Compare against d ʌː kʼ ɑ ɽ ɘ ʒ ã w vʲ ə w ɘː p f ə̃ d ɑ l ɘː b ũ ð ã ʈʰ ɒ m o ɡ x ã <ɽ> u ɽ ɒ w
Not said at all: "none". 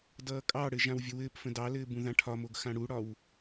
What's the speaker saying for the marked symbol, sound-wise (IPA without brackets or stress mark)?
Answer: ɽ